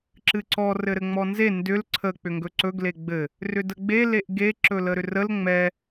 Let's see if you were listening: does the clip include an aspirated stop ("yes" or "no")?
yes